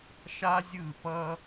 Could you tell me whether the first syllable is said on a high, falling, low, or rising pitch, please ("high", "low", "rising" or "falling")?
high